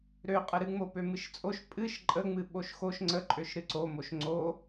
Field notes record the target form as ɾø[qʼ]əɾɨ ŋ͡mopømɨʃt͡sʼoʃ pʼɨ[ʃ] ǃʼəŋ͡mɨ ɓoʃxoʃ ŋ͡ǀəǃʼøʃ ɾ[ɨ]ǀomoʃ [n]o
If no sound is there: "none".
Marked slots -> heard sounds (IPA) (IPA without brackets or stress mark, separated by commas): qʼ, ʃ, ɨ, ŋ͡ǀ